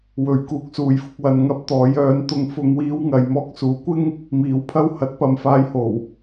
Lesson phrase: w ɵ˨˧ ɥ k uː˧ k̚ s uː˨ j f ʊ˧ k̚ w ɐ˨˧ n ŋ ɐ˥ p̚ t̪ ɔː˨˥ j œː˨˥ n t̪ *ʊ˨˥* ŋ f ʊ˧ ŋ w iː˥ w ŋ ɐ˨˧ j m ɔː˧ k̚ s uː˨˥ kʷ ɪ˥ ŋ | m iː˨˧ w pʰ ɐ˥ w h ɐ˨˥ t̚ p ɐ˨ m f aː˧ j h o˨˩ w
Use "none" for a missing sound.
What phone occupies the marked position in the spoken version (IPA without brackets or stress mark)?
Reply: ʊ˧